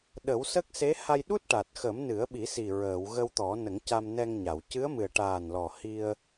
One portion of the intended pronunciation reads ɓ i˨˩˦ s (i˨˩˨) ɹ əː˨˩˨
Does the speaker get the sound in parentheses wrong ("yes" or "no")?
yes